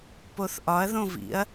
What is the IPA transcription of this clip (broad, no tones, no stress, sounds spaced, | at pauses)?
p o θ ʔ ɒ ɐ̯ ð õ v ḭ ɐ̯